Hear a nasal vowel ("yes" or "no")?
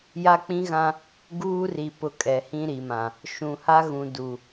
yes